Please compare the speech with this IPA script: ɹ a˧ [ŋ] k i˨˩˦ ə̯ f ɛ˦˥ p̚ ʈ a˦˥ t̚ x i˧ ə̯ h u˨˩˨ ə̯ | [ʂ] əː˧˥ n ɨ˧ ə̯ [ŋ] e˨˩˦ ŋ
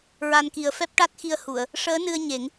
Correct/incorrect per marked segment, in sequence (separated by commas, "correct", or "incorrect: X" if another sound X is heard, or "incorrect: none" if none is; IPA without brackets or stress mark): incorrect: n, correct, incorrect: ɲ